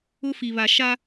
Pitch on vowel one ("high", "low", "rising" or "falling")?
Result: high